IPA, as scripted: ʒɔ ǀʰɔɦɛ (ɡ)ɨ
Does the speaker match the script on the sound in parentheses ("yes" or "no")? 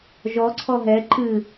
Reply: no